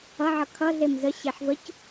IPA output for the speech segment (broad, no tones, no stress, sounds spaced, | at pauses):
ʌ ʕ ʌ kʰ ʌ ɮ e m z ə ɕ e ħ v ə c